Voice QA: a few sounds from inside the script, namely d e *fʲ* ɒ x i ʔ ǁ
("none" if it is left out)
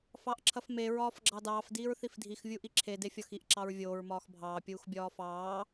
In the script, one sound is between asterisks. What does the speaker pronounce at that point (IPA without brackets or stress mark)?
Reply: fʲ